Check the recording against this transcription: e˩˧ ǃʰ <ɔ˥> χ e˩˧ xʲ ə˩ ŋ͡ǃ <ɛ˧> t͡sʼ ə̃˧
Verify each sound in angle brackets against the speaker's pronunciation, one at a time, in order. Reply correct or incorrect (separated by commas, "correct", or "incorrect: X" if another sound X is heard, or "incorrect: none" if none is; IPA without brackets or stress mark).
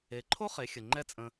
incorrect: o˥, incorrect: ɛ˥